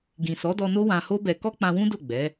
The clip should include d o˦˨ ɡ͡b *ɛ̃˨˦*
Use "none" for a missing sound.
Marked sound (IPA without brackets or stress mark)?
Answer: ɛ˨˦